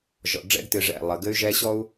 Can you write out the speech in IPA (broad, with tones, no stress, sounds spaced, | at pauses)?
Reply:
ʒ ɔ̰˨ ɖ͡ʐ ɛ̰˦ ɡ t ɨ˨ ʐ ɛ̰˦˨ lˠ ə˨ ɡ ɘ˦ y̯ ʒ ɛ˦ ɕ ɔ˦ u̯